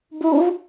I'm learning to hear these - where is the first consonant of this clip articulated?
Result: lips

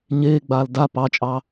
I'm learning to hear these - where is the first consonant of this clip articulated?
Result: palate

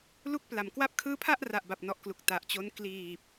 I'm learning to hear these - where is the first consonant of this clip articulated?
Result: tongue tip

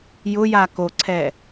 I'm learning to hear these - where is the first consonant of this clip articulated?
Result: palate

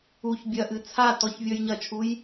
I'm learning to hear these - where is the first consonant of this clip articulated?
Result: palate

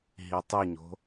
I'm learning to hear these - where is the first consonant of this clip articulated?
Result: throat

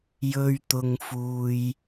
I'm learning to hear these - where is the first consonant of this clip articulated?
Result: palate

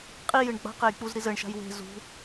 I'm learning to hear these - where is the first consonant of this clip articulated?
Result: uvula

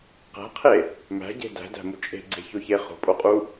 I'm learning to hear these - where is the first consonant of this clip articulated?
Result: uvula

